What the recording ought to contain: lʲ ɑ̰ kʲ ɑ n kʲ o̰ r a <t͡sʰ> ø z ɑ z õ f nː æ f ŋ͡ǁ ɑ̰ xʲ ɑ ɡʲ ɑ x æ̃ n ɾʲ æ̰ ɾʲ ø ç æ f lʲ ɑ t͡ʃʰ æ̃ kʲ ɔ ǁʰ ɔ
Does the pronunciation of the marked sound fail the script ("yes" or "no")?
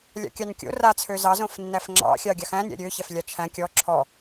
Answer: no